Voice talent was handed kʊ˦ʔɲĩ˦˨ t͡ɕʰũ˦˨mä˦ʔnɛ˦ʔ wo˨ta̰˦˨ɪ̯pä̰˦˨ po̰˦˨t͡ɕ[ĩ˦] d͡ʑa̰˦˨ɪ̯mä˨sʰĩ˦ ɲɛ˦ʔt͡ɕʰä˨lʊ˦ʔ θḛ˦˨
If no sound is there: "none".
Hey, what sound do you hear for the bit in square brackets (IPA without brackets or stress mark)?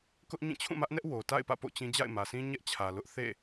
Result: ĩ˦